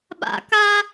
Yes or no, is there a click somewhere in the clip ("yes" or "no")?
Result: no